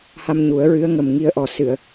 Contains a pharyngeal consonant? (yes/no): no